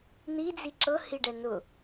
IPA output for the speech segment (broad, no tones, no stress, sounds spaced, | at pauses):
n̪ i d͡z i ǁ ɤ h i ɖ ɛ n ʊ